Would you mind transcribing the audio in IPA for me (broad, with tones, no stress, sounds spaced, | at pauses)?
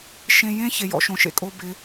ʃ ẽ˨ j ẽ˦ ç e˨ j ɔ̰˨ ʃ õ˨ ʃ ḛ˨ kʼ o˦ b ɪ˨˦